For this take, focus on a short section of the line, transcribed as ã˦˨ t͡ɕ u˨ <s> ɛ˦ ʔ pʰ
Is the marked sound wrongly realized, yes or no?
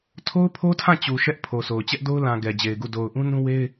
yes